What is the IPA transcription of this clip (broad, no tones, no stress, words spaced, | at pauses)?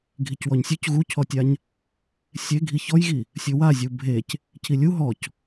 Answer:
ɡʱicwɔɲsʲɵc ɣucʰɔtʲaɲ | sʲe ɡʱiçɔjɣi | sʲɵwazʲu bʱec | cʰilʲu ɦɔc